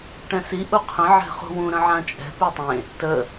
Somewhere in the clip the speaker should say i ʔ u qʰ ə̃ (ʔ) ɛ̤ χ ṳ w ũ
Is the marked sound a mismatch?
yes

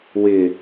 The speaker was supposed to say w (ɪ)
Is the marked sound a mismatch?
no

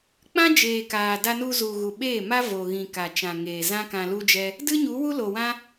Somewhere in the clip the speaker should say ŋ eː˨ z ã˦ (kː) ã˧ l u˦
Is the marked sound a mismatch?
yes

